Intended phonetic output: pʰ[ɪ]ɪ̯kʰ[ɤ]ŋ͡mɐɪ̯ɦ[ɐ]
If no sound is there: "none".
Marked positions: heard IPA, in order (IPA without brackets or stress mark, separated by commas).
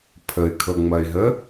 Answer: ə, ɤ, ə